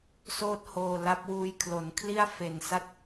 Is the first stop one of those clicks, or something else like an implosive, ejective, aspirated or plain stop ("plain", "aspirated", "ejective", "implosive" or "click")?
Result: plain